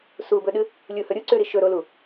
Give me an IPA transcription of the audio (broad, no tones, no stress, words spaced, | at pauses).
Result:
subɵɗɨ | lʲuhɵ ɾʲuǀʉɾi ʃɵɾolu